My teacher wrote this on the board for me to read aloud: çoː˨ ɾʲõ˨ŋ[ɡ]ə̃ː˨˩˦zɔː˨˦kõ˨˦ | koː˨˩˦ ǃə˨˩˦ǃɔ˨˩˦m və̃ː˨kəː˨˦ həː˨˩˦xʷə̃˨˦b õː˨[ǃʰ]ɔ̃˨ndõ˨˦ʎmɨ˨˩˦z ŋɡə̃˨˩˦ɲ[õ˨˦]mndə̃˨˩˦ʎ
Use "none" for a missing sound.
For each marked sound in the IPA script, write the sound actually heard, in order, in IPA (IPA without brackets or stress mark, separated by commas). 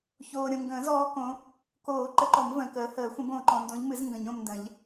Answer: ɡ, ǃ, õ˨